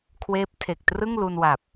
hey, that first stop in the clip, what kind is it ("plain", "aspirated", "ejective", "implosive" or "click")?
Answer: aspirated